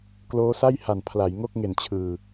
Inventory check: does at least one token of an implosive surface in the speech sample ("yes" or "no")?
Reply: no